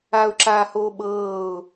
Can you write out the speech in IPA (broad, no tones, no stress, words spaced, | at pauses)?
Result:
aʊ̯ǁaːhoːɓɤːʊ̯